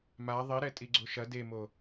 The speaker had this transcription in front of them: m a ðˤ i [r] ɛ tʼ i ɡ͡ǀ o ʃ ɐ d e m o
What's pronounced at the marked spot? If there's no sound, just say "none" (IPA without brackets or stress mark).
ɾ